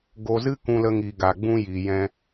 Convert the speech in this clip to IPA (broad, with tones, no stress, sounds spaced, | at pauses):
ɡ o˧ z ɨ˦ k ũ˧ l ə˧ ŋ i˨ ɡ a˨ ɡ͡b ũ˧ j iː˨ j ɛ̃˧